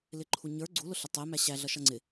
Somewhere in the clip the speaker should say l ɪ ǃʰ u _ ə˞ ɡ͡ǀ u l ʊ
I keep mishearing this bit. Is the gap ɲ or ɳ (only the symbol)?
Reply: ɲ